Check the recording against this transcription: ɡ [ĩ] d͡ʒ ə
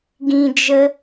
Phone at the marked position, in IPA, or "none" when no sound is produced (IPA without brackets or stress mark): ĩ